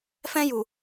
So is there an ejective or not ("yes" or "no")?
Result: no